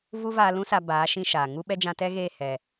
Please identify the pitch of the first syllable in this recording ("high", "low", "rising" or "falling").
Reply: high